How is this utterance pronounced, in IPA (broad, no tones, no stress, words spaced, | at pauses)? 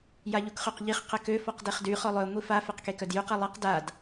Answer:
jaʎukχøqʎiχ qəkø fɔqdeχdy χɔlˠœ ŋʷifa feqkekœdjyq ɛlˠiq dad